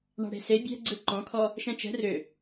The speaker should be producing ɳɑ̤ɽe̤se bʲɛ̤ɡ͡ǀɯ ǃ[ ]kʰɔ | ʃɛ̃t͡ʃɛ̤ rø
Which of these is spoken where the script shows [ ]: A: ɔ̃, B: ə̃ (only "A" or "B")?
A